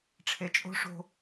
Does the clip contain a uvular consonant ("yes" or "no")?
no